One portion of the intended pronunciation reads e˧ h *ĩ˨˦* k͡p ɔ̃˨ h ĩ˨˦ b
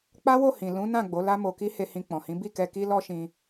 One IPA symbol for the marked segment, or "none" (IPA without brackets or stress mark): ĩ˧